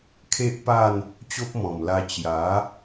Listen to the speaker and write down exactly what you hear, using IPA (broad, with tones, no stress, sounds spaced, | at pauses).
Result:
kʰ e˦ ʔ p a˥˧ n | t͡ɕ o˦ p̚ m ɔ̃˨˩ m l a˧ t͡ɕ j a˨˦